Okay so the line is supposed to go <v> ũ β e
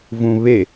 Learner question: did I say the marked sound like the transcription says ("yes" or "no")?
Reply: yes